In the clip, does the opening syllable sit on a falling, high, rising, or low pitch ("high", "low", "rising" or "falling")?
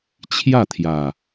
falling